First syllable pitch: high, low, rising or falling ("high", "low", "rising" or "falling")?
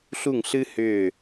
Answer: falling